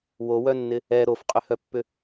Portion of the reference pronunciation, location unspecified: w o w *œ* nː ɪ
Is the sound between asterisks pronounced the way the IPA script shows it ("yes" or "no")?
yes